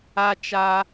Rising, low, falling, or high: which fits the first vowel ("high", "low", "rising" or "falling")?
high